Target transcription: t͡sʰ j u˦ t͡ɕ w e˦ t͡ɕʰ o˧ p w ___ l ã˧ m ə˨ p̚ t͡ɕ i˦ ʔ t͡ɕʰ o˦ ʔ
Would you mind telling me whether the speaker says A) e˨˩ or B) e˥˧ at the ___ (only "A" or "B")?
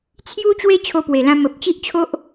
A